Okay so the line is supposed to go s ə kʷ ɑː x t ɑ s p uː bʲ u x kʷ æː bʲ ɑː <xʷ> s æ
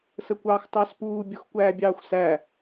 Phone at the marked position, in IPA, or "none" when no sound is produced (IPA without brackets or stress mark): xʷ